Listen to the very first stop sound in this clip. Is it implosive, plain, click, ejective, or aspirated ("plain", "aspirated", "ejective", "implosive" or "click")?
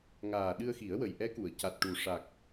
implosive